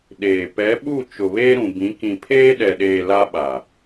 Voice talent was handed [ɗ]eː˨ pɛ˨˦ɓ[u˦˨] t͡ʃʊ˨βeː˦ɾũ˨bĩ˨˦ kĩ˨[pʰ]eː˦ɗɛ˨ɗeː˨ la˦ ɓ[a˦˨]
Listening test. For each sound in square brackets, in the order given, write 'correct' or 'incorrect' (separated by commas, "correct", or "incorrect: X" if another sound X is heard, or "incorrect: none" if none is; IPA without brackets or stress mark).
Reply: correct, correct, correct, incorrect: a˨